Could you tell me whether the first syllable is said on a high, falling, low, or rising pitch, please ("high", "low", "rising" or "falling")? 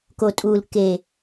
low